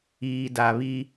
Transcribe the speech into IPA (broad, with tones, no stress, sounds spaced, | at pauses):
iː˨ d a˨ β i˦